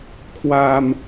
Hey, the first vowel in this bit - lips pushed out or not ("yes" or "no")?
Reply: no